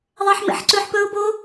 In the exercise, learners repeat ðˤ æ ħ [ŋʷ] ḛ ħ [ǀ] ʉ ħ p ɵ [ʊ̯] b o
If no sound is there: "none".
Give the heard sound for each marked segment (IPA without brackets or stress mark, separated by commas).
m, ǀ, ʊ̯